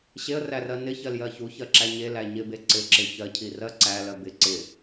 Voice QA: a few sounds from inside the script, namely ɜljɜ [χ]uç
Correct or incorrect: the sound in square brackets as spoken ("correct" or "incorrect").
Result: incorrect